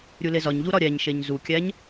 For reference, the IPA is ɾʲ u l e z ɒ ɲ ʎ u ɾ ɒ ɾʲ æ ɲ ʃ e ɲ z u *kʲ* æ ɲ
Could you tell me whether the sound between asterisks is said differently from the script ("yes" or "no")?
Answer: no